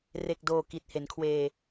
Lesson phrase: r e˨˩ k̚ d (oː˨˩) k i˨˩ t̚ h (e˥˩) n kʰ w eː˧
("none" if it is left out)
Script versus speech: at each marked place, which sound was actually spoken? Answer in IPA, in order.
oː˨˩, e˩˦

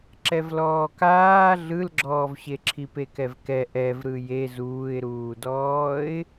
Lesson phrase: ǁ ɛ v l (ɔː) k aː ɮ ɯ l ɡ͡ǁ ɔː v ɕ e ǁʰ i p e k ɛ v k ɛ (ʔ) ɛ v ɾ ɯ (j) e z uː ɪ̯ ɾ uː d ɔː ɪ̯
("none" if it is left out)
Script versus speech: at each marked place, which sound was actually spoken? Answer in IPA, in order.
ɔː, ʔ, j

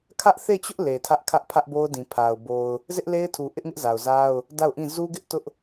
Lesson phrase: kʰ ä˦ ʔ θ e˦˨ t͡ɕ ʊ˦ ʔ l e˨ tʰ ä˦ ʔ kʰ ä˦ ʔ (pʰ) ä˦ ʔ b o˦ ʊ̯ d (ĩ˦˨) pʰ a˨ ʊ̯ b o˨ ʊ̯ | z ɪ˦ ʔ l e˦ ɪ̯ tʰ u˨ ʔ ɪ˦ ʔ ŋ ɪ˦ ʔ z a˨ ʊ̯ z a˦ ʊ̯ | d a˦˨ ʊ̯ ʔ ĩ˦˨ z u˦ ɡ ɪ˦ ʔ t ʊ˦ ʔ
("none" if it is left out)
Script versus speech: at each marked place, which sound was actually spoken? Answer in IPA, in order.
pʰ, ĩ˨

